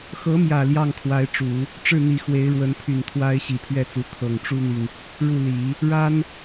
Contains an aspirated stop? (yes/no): yes